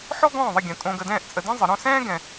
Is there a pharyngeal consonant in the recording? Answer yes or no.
yes